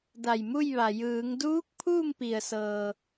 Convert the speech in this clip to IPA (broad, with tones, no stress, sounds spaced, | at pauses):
d a˧˩ j m u˥˨ j ʋ a˩ j ɯː˩˧ ŋ d uː˧˥ k̚ pʰ uː˥˨ m p i˩ ə̯ s ɤː˩